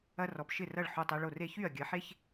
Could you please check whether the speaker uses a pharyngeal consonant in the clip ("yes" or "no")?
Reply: yes